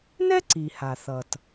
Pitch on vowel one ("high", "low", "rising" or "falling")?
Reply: high